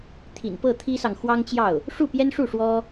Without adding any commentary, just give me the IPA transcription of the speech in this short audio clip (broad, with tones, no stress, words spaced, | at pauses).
t̪ʰḭ˨˩npɤ˥˩t̪ʰi˥sɑ˨ŋ xwɑ˥ŋt͡ɕjɑ˥˩ʊ̯ | ʂu˥˩pjɛ˥nʂu˥˩ ʂwɔ˥